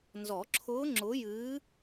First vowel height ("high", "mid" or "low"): mid